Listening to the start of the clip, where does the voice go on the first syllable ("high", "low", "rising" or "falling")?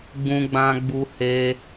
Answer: high